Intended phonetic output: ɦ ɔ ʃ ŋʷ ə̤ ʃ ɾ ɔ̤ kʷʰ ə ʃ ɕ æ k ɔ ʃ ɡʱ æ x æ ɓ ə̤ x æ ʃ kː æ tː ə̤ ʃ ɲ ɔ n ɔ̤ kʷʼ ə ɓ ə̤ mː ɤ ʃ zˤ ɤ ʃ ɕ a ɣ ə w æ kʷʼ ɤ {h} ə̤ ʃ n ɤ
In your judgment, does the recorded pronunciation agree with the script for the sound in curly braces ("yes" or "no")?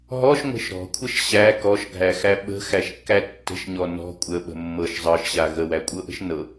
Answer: no